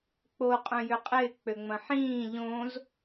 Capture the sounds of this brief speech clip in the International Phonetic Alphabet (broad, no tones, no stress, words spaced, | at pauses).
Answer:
k͡po qʼœ̃jʏqʼɪː k͡pøŋ͡mɐ̃ħĩː ʎõz